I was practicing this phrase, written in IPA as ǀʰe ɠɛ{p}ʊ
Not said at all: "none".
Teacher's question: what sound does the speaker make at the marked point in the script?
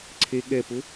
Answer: p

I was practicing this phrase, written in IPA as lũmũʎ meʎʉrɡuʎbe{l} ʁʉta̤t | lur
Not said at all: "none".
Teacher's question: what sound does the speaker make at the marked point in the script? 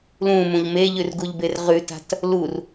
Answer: r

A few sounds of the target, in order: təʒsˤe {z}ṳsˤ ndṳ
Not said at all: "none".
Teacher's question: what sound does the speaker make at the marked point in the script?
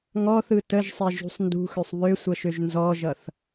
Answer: ʒ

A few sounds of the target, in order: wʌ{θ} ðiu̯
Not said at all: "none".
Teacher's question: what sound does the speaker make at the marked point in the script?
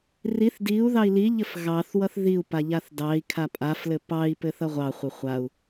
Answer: θ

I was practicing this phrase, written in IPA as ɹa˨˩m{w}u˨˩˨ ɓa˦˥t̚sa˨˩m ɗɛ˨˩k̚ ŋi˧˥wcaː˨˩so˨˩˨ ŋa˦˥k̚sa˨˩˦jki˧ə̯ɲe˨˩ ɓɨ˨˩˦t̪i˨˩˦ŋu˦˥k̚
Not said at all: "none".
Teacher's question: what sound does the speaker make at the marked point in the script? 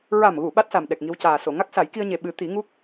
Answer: ɣ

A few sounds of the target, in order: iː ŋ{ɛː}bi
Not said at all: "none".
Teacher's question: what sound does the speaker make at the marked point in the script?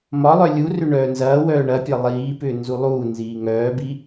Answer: œː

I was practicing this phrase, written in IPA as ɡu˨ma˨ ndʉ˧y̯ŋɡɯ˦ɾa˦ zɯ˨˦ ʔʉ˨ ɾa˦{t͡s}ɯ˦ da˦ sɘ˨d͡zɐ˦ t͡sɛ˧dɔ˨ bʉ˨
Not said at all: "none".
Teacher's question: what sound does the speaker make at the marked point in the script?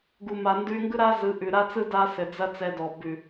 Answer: t͡s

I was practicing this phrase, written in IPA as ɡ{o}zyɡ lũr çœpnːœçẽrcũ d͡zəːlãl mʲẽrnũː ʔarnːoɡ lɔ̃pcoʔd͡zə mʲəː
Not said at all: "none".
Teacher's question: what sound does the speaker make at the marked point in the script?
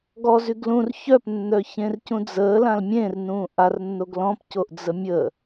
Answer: ɔ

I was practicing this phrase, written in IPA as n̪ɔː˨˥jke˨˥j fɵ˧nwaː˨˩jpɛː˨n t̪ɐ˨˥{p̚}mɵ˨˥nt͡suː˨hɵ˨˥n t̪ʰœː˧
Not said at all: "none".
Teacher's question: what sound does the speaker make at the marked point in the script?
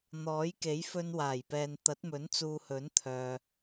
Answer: t̚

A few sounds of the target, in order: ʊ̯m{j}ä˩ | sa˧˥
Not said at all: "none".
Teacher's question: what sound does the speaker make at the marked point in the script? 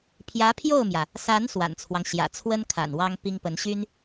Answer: j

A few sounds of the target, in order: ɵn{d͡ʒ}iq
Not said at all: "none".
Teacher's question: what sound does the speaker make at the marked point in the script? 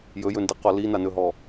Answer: d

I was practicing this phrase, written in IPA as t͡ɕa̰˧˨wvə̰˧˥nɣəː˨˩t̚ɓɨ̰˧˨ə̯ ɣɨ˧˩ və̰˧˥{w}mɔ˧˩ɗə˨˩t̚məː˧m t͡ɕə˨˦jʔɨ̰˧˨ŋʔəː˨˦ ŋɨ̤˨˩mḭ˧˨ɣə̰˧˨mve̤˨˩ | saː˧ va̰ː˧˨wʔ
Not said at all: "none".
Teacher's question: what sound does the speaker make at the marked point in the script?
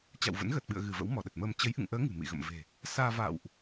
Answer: w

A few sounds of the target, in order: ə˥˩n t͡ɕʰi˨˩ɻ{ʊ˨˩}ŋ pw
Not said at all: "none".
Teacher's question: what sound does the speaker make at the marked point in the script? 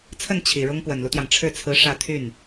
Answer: ʊ˥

